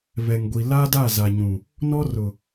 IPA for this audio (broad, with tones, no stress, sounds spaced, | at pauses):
β ɛ˨ ŋ ɡʷ i˨ l a˦ d a˦˨ z a˨ ɲ ũ˨ | n ɔ˦ r ʊ˨